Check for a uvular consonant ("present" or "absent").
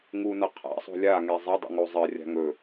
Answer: present